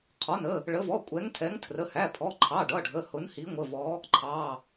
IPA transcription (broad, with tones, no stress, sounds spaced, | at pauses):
qʰ ɔ˩˧˩ n ə˩˧˩ | ɭ ə˨˦ v ɔ˩˧˩ kʷʼ ɛ˨˦ ŋ tʰ ɛ˨˦ ŋ tʰ r ə˩˧˩ h æ˩˧˩ pʰ ɔ˩˧˩ ǃʰ ɑ˩˧˩ ɖ ʌ˩˧˩ ɖʱ ə˩˧˩ h ʊ˨˦ n h i˨˦ ŋʷ ə˩˧˩ v ɔ˨˦ | ǃʰ ɑ˩˧˩